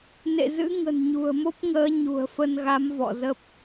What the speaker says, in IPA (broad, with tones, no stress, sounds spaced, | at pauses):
n ḛ˧˨ z ɨ̰˧˥ ŋ ə̤˨˩ n ɲ ṳ˨˩ ə̯ m o˦˥ p̚ ŋ əː˨˦ ɲ ṳ˨˩ ə̯ f ə˧ n ɣ a˨˦ m v ɔ̰˧˨ z ə˦˥ p̚